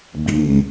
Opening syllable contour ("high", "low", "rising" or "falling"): low